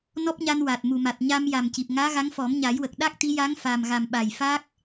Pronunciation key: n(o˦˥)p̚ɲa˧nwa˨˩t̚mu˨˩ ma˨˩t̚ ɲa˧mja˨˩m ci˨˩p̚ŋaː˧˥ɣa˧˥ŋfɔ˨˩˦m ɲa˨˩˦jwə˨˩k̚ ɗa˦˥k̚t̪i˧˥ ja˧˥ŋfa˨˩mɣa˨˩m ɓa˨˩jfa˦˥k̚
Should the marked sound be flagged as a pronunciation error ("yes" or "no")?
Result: yes